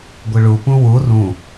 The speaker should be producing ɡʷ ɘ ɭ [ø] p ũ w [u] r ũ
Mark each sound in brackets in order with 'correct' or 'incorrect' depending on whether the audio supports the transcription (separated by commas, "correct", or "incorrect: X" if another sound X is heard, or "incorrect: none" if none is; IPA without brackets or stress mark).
incorrect: u, correct